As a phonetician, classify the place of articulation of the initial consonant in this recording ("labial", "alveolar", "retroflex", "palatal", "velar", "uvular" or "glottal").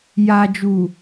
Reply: palatal